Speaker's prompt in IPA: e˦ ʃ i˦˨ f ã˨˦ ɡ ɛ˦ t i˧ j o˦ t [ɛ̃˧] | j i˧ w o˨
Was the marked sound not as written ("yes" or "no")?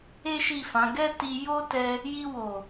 yes